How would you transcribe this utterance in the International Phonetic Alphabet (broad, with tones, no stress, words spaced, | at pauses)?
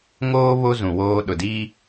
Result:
ŋoː˦ βo˦ zũ˨woː˦ ɗʊ˨diː˦